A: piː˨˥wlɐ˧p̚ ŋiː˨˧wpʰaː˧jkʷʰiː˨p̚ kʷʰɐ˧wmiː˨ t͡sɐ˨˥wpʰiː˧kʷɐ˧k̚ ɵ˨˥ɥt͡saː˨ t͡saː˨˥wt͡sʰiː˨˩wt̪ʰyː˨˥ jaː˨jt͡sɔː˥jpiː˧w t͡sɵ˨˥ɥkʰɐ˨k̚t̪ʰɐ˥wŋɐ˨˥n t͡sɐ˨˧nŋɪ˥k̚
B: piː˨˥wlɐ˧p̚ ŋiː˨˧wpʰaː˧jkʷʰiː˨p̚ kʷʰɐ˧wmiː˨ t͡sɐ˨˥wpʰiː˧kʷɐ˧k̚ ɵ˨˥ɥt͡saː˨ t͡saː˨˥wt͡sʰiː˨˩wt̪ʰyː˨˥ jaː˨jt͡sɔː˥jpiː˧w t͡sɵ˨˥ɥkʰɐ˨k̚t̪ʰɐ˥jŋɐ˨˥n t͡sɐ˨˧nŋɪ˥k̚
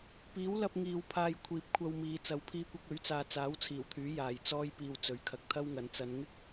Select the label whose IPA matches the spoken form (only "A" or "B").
A